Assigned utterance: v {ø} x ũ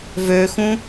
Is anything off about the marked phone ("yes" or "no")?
no